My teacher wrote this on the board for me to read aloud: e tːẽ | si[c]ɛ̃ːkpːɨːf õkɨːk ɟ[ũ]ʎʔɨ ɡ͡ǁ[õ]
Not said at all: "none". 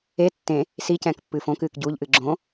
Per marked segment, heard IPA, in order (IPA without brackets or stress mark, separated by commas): c, u, õ